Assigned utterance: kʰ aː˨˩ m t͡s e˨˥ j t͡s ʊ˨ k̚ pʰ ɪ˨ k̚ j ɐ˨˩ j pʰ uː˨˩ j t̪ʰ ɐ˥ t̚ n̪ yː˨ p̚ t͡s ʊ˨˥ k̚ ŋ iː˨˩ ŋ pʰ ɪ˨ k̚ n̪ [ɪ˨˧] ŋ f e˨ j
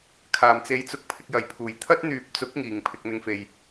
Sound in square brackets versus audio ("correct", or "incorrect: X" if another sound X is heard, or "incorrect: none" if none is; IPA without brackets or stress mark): correct